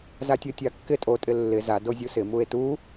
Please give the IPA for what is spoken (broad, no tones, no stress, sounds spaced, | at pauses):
z a tʲ o tʲ a kː ɪ tʼ o tʼ ɪ lː ɪ z a d o zʲ u s ɪ m u e̯ t u